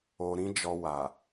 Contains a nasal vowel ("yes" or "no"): yes